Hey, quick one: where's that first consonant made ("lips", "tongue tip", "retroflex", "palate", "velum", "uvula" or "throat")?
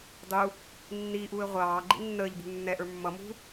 tongue tip